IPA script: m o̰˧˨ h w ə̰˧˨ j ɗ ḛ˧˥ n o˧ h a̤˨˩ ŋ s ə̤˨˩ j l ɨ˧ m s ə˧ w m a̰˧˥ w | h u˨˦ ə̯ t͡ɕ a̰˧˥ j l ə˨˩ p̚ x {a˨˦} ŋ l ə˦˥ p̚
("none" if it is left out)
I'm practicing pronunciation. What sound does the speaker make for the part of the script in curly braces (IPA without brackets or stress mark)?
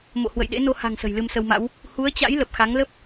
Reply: a˨˦